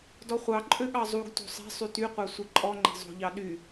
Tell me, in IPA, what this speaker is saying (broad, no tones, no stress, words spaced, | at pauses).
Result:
dɔχʷɑ ǃʼøɠɑzˤuɡ to̤sˤɛ̤ sˤytyqʷɑ sʷiǃʼɔŋ͡ǃe̤ zˤo̤ʎɑ ɗy